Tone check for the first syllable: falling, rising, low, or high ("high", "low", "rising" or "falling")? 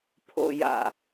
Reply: low